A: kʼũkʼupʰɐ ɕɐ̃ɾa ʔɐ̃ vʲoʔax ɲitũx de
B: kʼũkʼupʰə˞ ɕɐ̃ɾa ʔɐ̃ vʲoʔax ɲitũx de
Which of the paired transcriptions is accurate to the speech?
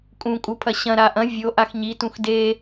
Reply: A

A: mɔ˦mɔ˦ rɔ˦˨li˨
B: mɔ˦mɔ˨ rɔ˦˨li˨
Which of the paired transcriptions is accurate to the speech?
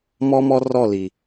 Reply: A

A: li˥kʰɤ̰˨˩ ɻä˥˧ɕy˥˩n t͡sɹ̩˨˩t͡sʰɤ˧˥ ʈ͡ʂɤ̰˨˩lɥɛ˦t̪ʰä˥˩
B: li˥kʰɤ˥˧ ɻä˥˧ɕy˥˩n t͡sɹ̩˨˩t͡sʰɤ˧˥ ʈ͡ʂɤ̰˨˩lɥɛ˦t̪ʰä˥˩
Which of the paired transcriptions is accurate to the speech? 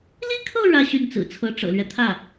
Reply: B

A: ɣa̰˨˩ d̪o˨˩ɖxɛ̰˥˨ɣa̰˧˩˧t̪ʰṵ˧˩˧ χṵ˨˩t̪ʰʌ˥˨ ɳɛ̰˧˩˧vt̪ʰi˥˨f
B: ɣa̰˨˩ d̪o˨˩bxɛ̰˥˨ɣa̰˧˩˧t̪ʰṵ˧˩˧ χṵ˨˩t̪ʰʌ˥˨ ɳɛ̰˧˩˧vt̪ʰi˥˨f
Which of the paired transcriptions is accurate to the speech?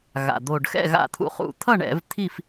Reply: A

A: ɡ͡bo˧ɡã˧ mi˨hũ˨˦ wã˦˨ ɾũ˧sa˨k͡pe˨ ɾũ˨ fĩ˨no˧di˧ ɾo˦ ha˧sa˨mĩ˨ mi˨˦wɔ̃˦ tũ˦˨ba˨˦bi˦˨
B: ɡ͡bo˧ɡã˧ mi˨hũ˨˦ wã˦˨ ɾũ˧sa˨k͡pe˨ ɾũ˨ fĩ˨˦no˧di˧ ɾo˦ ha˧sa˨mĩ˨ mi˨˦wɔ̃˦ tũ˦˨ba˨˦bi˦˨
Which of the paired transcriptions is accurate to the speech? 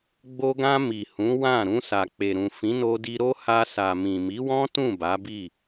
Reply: B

